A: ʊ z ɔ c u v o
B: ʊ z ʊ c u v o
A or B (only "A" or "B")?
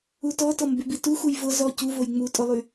A